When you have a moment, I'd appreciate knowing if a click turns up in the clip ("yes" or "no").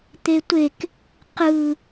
no